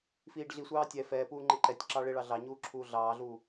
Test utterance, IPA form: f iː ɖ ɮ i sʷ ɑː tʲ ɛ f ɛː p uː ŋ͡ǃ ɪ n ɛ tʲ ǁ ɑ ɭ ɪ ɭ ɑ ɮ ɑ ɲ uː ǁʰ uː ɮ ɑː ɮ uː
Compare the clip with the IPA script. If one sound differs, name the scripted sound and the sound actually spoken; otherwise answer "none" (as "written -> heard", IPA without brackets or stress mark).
n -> ǃ